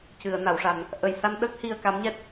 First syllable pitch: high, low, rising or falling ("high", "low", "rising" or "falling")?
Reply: low